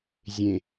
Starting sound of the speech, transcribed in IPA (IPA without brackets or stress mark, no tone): zʲ